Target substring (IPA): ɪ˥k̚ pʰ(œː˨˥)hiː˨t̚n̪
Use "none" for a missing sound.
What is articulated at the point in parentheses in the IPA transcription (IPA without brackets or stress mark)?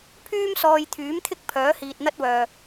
œː˨˥